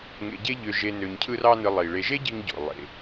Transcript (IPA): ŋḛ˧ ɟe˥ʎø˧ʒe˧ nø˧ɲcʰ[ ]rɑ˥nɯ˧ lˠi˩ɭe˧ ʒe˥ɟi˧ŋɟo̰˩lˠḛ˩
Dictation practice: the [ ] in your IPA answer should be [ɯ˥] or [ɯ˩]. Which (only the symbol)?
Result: ɯ˥